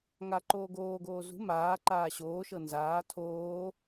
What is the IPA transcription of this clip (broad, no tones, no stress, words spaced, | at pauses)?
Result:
ŋa ǃoːɡoːɡoː zṳ maː ǃaːɕoːʃɤ nzaː tʰoː